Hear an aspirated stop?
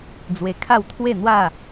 yes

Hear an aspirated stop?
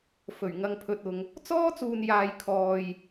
yes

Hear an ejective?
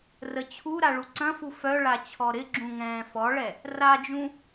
no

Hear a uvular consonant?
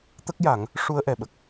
no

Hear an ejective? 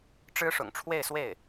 no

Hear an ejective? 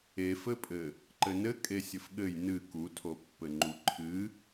yes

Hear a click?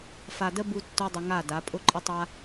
yes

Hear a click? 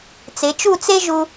no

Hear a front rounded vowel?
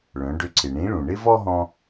yes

